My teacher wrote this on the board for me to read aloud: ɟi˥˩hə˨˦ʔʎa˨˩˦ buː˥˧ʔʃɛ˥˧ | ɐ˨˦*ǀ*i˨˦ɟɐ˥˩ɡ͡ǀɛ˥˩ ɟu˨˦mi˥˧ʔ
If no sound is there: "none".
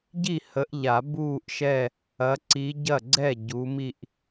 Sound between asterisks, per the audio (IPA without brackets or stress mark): ǀ